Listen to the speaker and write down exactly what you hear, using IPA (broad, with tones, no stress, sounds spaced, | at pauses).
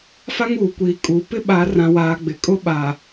f a˦ ŋ uː˨ kʷ iː˨ kʼ uː˨ p ɪ˦ ɓ a˨˦ r ã˨ w aː˨ ɡ͡b ɪ˨ kʼ ʊ˦ ɓ a˨